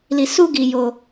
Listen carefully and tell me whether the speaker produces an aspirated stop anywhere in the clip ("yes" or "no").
no